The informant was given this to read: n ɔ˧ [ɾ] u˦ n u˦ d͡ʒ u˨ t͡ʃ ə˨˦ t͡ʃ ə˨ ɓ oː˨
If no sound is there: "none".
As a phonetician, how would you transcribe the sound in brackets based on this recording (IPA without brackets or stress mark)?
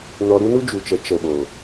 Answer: ɾ